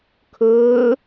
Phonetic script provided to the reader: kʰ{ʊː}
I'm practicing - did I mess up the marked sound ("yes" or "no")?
no